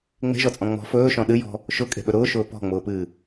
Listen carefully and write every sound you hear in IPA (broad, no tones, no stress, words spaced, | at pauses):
ŋ͡me̤ʒɔt͡sʼɔ̃ ŋ͡mɔ̤ fɵːʃɔ̃ ɗɨjɔ̤ | ʃʊkʼe̤ɓɵ ɾʊːʃʊː pɔ̤ŋ͡mʊːpɨː